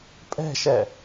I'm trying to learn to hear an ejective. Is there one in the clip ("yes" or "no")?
yes